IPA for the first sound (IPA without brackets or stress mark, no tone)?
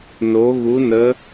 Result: n